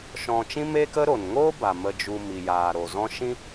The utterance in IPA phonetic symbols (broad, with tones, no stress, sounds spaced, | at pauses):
ʃ ɔ̃˧ t͡ʃ ĩ˦ m eː˦ k ə˦ ɾ o˨ n ŋ oː˦ b a˨ m ə˧ d͡ʒ u˧ m i˨ j aː˨ ɾ o˨ z ɔ̃˦ ʃ ĩ˦